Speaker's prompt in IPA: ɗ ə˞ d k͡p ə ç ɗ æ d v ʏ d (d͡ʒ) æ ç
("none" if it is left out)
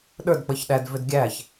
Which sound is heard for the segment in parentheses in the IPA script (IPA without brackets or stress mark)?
ɡʲ